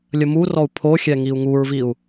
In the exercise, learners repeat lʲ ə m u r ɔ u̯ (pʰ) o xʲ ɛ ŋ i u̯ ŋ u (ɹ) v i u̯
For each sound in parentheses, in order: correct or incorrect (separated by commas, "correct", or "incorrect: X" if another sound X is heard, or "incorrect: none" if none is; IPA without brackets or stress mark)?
correct, correct